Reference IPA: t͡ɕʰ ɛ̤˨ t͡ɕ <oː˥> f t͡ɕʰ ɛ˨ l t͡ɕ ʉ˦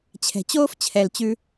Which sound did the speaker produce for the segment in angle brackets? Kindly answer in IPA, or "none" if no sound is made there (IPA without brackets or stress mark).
oː˥